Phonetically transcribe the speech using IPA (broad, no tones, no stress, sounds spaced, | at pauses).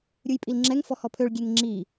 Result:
ɾʲ u j pʼ i l ŋ͡ǁ ɛ ŋ f ɔ h ɔ pʰ ø ɭ ɡʲ e ŋ ŋ͡ǁ i